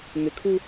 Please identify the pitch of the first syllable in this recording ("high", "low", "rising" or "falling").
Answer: low